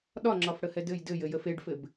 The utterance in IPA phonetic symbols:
ɗ ɒ ŋ͡ǁ ɒ f ɽ ə h ɛ d ɘ j d ɘ j ɘ j ə f e ɖ f ɘ b

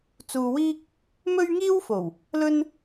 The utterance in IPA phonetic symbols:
t͡s uː˧ w iː˥ k̚ | m ɵ˥ ɥ ŋ iː˥ w f o˨˩ w | l ɵ˥ n

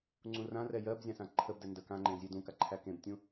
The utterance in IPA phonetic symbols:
ŋ͡ǀ ũ r ã r ɛ j ɜ b zʲ ã s ã ǃʰ ə b d ɛ n d ə k ã ŋ͡ǃ ẽ zʲ e d ũ k a ǃʰ æ k ẽ b tʲ ũ

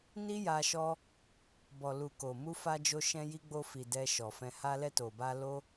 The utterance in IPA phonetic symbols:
n i˦ j a˧ ʃ ɔ˧ | b ɔ˨ l u˨ k o˨ m u˧ f a˧ d͡ʒ o˧ ʃ ɛ̃˧ j i˧ ɡ͡b o˧ f i˨ d ɛ˧ ʃ ɔ˨ f ɛ̃˧ h a˧ l ɛ˧ t o˨ b a˧ l o˦

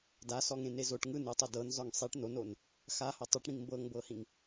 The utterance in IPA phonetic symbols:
d a s ɔ ŋ ẽ n e z o ʈ ŋ ɯ n ɯ tˤ o d ɤ n z ɔ ŋ sˤ i ʈ n o n o n | x a h ɔ tˤ o ʈ ɽ ĩ ŋ m b ɤ ŋ b ɤ h ĩ ŋ

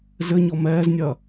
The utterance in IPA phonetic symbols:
z ɘ ɲ ɔ m ɛː z nʲ ɐː

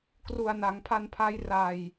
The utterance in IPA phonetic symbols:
k r u˨˩ a̯ n a˩˦ ŋ pʰ a˧ n pʰ a˦˥ j r a˨˩ j

